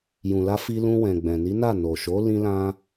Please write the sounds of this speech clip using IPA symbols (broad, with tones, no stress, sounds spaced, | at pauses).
j ũ˨ l a˧ f i˧ l ũ˧ w ɛ̃˨ ɡ͡b ɛ̃˨ n i˨˦ n a˦˨ n o˨ ʃ o˨˦ l ĩ˧ l ã˧